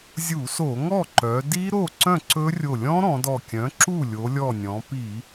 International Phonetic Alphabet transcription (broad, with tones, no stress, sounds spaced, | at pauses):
zʲ u˧˩˧ s o˧˩˧ ŋ ɔ˥˩ ǃ œ˩˧ d i˦˥ ɾ o˥˩ ǀ œ̃˥˩ ǀ ɵ˦˥ rʲ o˧˩ lʲ ɔ̃˦˥ ɾ ɔ̃˩˧ d ɔ˧˩ kʲ œ̃˩˥ ǁ u˥˩ lʲ o˩˧ lʲ ɔ˧˩ nʲ ɔ̃˩˧ p i˧˩˧